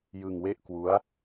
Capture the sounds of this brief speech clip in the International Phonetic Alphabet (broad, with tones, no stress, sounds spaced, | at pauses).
j ɯ˧ ŋ w e˥˩ ʔ k w u˦˥ a̯